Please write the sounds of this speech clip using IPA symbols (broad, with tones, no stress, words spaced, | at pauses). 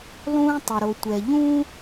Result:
lˠũː˥tˤʊ˩ɾo˩tʷɛ˩ ʎũ˥